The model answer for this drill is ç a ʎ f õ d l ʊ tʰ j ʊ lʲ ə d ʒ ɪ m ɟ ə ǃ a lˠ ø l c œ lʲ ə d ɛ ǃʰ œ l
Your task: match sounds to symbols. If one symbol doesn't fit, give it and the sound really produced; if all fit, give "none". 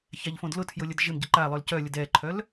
none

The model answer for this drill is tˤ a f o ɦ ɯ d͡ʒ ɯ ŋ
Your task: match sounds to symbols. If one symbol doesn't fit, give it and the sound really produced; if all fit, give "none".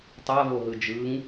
f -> v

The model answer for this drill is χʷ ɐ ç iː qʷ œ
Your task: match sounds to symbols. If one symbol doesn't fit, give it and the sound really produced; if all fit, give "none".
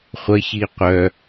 none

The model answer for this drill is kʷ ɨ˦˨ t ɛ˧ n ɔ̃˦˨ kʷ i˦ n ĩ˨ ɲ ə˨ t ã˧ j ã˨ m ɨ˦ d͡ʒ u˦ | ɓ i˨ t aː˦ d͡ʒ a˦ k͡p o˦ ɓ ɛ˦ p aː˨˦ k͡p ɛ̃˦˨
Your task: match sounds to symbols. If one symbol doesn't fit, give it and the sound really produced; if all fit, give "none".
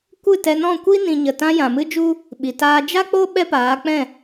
none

